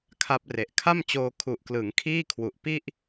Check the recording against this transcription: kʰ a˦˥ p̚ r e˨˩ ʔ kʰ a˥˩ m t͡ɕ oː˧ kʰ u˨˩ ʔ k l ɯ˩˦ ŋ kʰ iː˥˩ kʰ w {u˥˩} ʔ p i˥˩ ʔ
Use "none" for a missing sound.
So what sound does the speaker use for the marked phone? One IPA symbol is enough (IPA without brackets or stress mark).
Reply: u˨˩